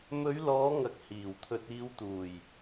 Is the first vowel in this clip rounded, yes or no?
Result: yes